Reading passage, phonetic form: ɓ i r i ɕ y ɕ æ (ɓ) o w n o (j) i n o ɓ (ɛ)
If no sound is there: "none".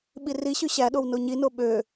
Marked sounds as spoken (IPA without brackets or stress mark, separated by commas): ɗ, ɲ, ø